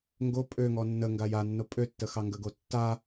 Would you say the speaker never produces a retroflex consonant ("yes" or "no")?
yes